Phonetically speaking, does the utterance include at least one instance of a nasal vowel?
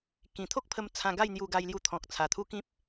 yes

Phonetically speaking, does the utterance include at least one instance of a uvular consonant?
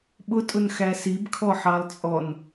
no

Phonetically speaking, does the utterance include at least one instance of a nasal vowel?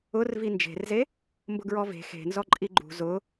no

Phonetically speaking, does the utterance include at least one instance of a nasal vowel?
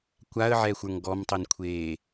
no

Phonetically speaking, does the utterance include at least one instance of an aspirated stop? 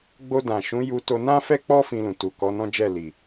no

